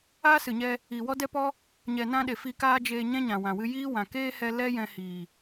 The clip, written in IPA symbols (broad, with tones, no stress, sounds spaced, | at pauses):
aː˦ s ɨ˨ ɲ ɛ˧ | iː˨ w ɔ˦ d ɛ˦ p ɔ˦ | ɲ ɛ˨ n ã˧ ɗ e˨ f i˧ k aː˦ d͡ʒ eː˧ ɲ ɛ̃˦ ɲ ã˨ w ã˨ w ɨ˧ j iː˦ w ã˨ k eː˦ h ɛ˧ l ɛ˦ j ɛ̃˧ h iː˨